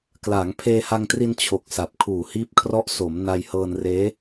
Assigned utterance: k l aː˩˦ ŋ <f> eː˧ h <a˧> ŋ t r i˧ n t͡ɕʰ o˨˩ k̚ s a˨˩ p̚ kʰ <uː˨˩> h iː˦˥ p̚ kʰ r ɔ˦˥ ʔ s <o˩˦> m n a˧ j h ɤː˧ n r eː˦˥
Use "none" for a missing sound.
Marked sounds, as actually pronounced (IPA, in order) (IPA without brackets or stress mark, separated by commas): pʰ, a˧, uː˨˩, o˩˦